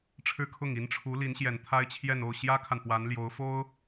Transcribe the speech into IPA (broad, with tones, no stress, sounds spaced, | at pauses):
ʈ͡ʂʰ ɻ̩˥˧ kʰ ʊ˥˩ ŋ i˧˥ n ʈ͡ʂʰ u˧˥ l i˧˥ n ɕ j ɛ˨˩ n t̪ʰ a˥ ɪ̯ t͡ɕʰ j ɛ˥˧ n o˥˩ ʊ̯ ɕ j ä˥ kʰ a˨ n p w a˧˥ n l j o˧˥ ʊ̯ f o˥ ʊ̯